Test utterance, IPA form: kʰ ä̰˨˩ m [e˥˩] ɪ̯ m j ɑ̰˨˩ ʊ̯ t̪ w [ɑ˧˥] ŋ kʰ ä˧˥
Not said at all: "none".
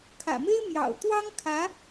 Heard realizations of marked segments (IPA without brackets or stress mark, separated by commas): e˥, ɑ˥